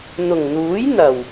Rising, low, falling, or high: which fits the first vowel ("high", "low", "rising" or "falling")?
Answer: low